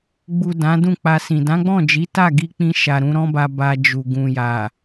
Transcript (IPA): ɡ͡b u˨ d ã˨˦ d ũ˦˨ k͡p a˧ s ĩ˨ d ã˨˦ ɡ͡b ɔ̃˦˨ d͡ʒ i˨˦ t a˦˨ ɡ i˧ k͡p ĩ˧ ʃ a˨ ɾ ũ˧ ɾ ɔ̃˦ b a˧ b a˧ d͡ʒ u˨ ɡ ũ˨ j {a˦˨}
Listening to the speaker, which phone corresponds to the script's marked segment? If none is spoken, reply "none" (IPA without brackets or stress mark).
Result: a˨